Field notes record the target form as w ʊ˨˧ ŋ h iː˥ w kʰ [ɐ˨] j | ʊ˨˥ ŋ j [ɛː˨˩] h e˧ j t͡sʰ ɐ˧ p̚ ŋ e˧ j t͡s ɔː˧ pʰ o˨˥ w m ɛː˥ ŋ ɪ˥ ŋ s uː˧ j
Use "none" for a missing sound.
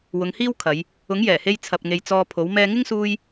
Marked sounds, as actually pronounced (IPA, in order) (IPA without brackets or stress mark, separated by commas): ɐ˨˧, ɛː˨˩